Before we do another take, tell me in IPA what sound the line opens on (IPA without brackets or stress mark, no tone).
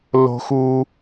l